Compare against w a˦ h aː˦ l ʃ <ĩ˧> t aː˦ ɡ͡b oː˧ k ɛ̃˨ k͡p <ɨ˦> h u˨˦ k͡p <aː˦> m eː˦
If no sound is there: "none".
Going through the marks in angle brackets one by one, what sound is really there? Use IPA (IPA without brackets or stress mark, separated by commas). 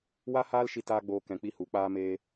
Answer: i˧, i˦, aː˦